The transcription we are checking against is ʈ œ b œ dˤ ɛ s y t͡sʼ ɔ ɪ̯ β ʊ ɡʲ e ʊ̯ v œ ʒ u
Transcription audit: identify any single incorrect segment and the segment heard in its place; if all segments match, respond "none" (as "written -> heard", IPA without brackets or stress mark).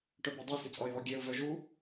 ʊ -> ɔ